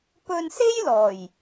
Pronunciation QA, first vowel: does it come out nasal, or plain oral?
oral